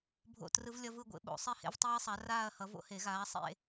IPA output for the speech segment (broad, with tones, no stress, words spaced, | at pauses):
bʱo̰˥˩trɯ˦˥v lʲʌ˦˥vɯ˥˧ɡʷḛ˨˥ ɓo̰˨˩˦ sˤi˥˧hḛ˦˥vtˤiː˦˥sˤa˨˥ raː˥˧ɐ̯hʌ˨˥ vo̰˦˥he˨˩˦ɣaː˨˥ sˤḛ˥˧